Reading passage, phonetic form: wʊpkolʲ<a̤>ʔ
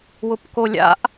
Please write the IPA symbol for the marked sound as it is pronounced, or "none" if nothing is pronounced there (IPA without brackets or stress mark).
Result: a̰